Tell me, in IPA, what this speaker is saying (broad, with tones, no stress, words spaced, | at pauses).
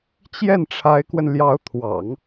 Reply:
t͡ɕjɛ˥˩nʈ͡ʂʰa˧˥ɪ̯kwə˧n ljɑ˧˥ʊ̯t̪ʰwɑ̰˨˩˦ŋ